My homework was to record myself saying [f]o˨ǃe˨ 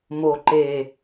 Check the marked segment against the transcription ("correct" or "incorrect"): incorrect